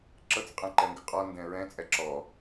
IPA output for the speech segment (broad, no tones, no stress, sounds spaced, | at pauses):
ǁ ɤ t͡s qʼ ɛ̃ ǃ ɛ ŋ ɡ ə qʼ ɔ n d ɛ̃ ɹ ɛ̃ t͡sʼ ɛ ǁ ɔ